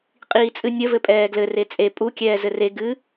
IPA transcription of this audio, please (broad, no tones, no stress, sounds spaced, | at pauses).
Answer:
qʼ iː t͡sʼ ɨ nʲ ə v ɘ pʼ ɛː ɡ l ɘ r e t͡sʼ e pʼ u kʲ ɛː z ɘ r e ɡ ɨ